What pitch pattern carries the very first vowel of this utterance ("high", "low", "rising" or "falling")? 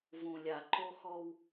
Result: low